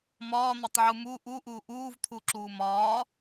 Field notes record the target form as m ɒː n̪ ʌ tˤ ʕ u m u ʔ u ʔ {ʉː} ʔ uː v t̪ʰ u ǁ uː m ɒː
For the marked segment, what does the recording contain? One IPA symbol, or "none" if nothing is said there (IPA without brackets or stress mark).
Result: uː